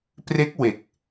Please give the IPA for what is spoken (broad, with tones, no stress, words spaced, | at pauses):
pre˦˥k̚ we˨˩k̚